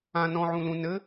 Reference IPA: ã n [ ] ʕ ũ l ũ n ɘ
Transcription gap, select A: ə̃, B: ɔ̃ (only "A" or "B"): B